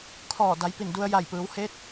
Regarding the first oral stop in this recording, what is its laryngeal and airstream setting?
aspirated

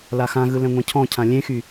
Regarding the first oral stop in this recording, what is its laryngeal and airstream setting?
aspirated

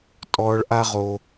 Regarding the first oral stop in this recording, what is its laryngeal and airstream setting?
ejective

